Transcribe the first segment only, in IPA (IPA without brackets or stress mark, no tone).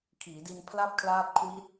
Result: kʰ